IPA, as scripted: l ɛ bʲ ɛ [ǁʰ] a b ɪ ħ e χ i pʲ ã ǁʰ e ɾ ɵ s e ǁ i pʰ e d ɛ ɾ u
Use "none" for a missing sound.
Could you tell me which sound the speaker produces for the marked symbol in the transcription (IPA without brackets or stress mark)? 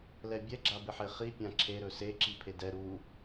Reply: ɡ͡ǁ